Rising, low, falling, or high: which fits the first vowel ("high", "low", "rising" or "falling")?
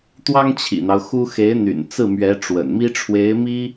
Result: high